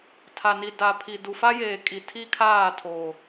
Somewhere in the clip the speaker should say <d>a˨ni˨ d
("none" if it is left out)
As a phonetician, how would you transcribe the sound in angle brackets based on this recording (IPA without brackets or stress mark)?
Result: tʰ